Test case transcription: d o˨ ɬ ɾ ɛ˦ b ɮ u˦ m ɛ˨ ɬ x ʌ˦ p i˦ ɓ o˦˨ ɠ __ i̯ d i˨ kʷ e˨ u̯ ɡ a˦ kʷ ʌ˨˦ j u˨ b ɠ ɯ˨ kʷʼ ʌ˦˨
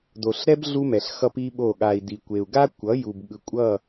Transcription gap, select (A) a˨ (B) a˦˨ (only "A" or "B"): A